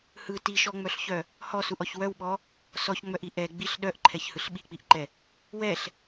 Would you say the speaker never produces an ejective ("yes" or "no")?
yes